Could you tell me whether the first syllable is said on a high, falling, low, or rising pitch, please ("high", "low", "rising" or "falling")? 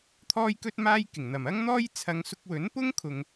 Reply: high